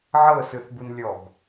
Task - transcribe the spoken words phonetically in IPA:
ʕ ɤ s ɯ θ b u n lʲ ɔ b

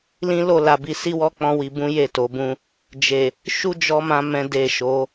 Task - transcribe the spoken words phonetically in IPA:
l ĩ˦ l o˦˨ l a˨ b i˨ s i˧ w ɔ˧ k͡p ɔ̃˦ w i˧ b ũ˦ j e˦˨ t o˨˦ b ũ˦ | d͡ʒ e˨ | ʃ u˧ d͡ʒ ɔ˨ m ã˨ m ɛ̃˨ d e˨ ʃ o˨˦

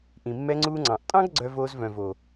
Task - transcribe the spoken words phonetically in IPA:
ʔ ĩ˨ mː ɛ˧ ŋ͡ǀ uː˧ ŋ͡ǀ ɑ̃˨ ʔ tʼ ɑ̃˦ ɡ ɡ͡ǀ œ˧ v oː˧ z v œ̃˨ v o˨

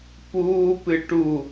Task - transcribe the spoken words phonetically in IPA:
p uː p ɨ ʈ u

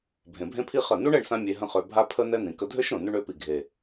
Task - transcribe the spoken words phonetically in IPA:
bʱ ẽ˨ bʱ ẽ˦ pʰ i˦ χ ə˦˨ n u˦ ɳ ɛ˦˨ ɳ s ã˧ mʲ e˧ ɦ ə̃˦ χ ø˧ bʱ a˦ pʰ ə˦ n ɛ˦ n̪ ĩ˨ k ə˧ dʱ ø˦ ʃ ɾ õ˨ n y˧ ɳ ø˨˦ p i˨ ɡʱ e˨

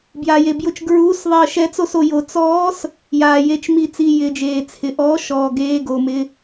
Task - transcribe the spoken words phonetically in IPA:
b j a˨ j e˨ b j ʊ˦˨ t͡ʃ ɡ ɹ uː˧˥˧ s ðˤ ɪ˦˨ ə̯ ʃ ɛ˧˥ t͡s o˦˨ s o˨ j o˨ t͡s ɔː˧˥ s | j aː˨ j e˦˨ t͡ʃ m i˦˨ t͡s i˦˨ j ɪː˨ d͡ʒ eː˨ t͡sʰ ɪ˨ ʔ ɔː˧˥ ʃ ɔː˨ ɡ eː˧˥˧ ɡ oː˨ m ɪ˧˥˧

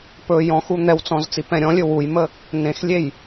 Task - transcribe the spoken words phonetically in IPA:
p ɵ j ɔ̃ x u n̪ ɛ w t͡s ɔ̃ z t͡s i p ɛ̃ ɾʲ ɔ̃ lʲ ɵ w u j m ə | n ẽ x lʲ e j

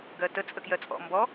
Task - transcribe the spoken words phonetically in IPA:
ɡ ɜ t ə t͡sʼ ə k j ɜ t͡sʼ ɔ̰ m b ɔ

